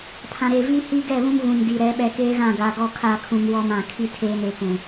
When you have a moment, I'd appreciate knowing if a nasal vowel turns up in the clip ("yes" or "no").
yes